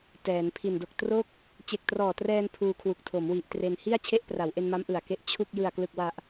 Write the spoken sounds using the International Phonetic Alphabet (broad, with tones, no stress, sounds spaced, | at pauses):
t ɛː˩˦ n pʰ i˨˩ n d o˨˩ k̚ t r o˥˩ k̚ | t͡ɕ e˨˩ k̚ t r ɔː˨˩ t r ɛː˧ n pʰ uː˧ kʰ w u˨˩ k̚ tʰ o˩˦ m w i˨˩ ʔ t r e˧ n h i˥˩ a̯ t͡ɕʰ e˥˩ ʔ p r a˩˦ w ʔ e˧ n m a˦˥ m ʔ ɯ˨˩ a̯ k e˦˥ ʔ t͡ɕʰ u˥˩ k̚ j ɯ˨˩ a̯ k l ɯ˨˩ k̚ w a˨˩ ʔ